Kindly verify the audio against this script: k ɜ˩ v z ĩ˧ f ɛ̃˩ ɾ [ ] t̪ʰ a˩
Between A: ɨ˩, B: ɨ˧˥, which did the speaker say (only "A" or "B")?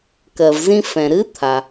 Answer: B